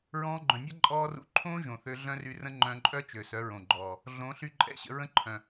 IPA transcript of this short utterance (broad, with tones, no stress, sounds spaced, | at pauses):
ɹ ɔ̃ː˧ ɡ͡ǃ œ̃˨ nʲ a˦ ǃʼ ɔː˧ r ṵ˧ ǃʰ õː˦ ʒ õ˨ θ ø˧ ɮ œ̃˦ r y˧ r ə̃˦ ŋ͡ǃ œ̃˧ ǃʼ œ˦ t͡ʃ ø˨ s œ˨˦ ɹ õ˨ ɡ͡ǃ ɔː˨ | ɮ õ˨˦ ɬ y˧ ǃʼ ɛ̰˧ ɕ ə̰˧ ɹ ə̃˦ ǃʰ œ̃˨